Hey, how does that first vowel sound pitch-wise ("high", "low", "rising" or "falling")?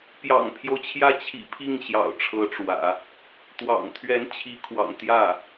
low